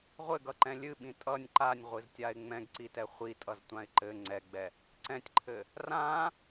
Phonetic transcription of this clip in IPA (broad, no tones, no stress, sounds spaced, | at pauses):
ʁʷ ɘ ɡ ʌ ǃ ɛ̃ lʲ ɨ ɓ ĩ tʼ ʌ nʲ ǃ a nʲ ʁʷ ɨ z tʲ a ɪ̯ ŋ͡m ɛ̃ ɡ ǀ i t ɛ χʷ i tʼ ʌ z tʷ ã ɪ̯ ǃ ɘ ŋ͡ǀ ɛ ɡ͡b ɛ | ǀ ɛ̃ tʲ ǃʰ ɘ | r ã